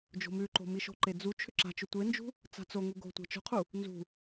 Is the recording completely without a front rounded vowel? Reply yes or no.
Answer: no